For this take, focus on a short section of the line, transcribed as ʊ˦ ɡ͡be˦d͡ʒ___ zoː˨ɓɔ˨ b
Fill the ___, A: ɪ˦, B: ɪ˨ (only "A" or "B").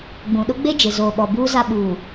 B